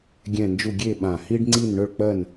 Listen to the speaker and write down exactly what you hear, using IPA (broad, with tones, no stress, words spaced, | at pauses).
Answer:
ɡʲɛ̃˥˧nd͡ʒu˥˧ ɡʲe˥˧ɓã˧˩ hi˥ɖŋ͡ǀi˥˧nɳɵ˥˧ɭk͡pɜ˥˧n